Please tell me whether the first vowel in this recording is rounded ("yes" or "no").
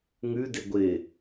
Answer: yes